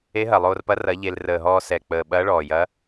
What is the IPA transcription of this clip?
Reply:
e˧˥ ɦ ɐ˨˩ lˠ oː˧ r p ɐ˧˥ r ɐ˧˥ ʎ e˧ l r əː˨˩ ɦ ɔː˧ s ɛ˨˩ k͡p əː˨˩ ɓ ɐː˧˥ ɭ ɔː˨˩ j ɐː˧˥

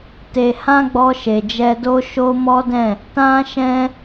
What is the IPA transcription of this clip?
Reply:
t e˨ h ã˧ ɡ͡b ɔ˧ ʃ e˨ d͡ʒ ɛ˧ d o˦ ʃ o˦ m ɔ˦ d ɛ̃˦˨ | t ã˦ ʃ ɛ̃˦

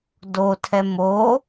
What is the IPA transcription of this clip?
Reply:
d o tʰ ɛ m o

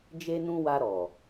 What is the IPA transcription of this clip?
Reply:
d͡ʒ e˧ n ũ˧ w a˧ ɾ ɔ˨

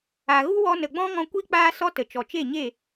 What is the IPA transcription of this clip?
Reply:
a˨ ɣ u˦ w ɔ˧ n ə˨ ɡ͡b ɔ̃˦ ŋ ɔ̃˧ kʷ i˦ k͡p aː˧ s ɔ˧ t ə˨ t͡ʃ ɔ˨ t͡ʃ e˦˨ ɲ e˦˨

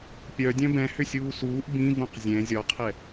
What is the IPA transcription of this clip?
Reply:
pʲ œ dʲ œ̃ b ɛ̃ h ʏ sʲ uː s uː ʔ b ĩ v ũ q zʲ ɛ̃ zʲ ɒ qʰ ɛ

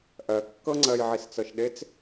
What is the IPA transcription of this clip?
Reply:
ʔ ɜ kː ɤ ŋ͡ǀ ɜ j ʕ i s t͡s ɤ ʃ ɗ e t͡s

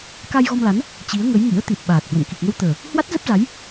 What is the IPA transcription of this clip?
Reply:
k a˧ j ɣ ɔ˧ m l a˨˦ n | t͡ɕ i˨˦ ə̯ ŋ ə˨˦ j ŋ ḭ˧˥ ə̯ t̪ i˨˩ t̚ ɓ aː˨˩ t̚ h w ə̰˧˨ n k i˨˩ k̚ ŋ ə˧ w t̪ əː˨˩ | h w a˦˥ t̚ z ə˦˥ p̚ z a˨˦ j

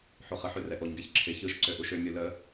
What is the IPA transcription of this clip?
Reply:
ħ o χ ə ħ ø r ɛ ʔ o ɲ ɡ ɛ ç ǁʰ ɪ ç ɯ ʃ ǀ ø ʔ u ʃ ø mʲ u l ə

